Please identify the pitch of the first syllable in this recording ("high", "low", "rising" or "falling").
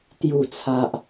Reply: low